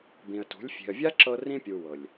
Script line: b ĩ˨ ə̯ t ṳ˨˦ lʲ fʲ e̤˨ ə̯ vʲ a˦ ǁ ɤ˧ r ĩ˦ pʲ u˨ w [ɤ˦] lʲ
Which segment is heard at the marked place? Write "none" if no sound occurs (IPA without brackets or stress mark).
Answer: ɤ˨